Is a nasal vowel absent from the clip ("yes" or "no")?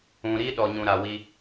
no